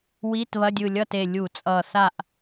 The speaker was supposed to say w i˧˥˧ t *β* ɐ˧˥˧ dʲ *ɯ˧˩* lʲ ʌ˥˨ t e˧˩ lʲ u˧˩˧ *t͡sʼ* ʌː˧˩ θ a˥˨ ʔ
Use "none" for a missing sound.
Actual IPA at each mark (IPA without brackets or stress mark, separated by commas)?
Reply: β, ɯ˧˩, t͡sʼ